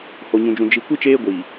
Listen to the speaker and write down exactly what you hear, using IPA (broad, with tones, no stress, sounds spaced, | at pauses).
h o˨ ɲ ũ˨ d͡ʒ ũ˨ d͡ʒ i˨ kʷ i˦ t͡ʃ eː˦ ɡʷ iː˨